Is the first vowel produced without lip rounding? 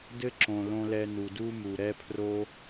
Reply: yes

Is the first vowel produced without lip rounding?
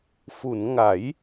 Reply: no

